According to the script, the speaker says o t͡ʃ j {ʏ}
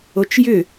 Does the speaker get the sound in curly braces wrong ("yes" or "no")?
no